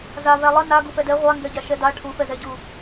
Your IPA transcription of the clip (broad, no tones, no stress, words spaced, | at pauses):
zavæ lˠə na ɡufɛdɛ ʁʷaŋɡɛɟa ʃɛda ʈʰufɛzɛɟu